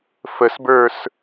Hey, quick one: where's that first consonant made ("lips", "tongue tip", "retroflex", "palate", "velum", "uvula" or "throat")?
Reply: lips